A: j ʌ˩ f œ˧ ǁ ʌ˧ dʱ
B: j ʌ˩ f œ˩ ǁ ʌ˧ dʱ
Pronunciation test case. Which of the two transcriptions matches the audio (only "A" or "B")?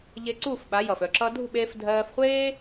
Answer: A